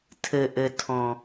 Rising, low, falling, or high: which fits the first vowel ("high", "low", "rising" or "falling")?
low